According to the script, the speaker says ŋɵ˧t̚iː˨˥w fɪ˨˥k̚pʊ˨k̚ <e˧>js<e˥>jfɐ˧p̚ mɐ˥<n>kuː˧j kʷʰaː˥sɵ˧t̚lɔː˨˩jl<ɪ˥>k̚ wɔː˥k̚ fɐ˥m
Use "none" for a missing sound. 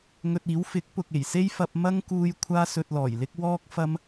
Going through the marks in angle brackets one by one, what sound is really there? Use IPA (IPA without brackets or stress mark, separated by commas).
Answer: e˨˩, e˥, ŋ, ɪ˥